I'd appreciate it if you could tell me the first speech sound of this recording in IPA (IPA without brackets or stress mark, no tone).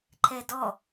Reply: ǃʰ